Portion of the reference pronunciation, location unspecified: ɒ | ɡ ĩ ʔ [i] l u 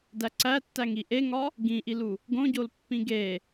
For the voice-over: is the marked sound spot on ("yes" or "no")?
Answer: yes